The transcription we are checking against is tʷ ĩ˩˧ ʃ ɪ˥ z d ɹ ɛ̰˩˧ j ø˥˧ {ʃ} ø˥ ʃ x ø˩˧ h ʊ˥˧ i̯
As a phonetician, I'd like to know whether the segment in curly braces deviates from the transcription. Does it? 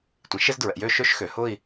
no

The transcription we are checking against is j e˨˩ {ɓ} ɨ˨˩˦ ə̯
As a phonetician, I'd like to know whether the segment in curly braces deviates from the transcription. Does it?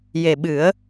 no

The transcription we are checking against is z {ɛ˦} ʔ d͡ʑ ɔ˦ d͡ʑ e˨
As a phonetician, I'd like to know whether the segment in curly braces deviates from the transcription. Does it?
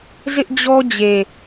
yes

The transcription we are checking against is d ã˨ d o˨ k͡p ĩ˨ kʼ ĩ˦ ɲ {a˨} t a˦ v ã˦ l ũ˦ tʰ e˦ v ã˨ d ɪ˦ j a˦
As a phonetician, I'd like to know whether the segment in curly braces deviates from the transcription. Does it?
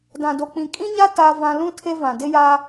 yes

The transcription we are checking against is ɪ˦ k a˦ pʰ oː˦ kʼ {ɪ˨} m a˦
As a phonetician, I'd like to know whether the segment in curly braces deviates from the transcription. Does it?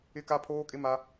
yes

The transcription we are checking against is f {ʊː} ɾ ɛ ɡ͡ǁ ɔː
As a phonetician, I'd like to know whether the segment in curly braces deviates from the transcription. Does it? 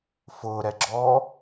no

